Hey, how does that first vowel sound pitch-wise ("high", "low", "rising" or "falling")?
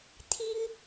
high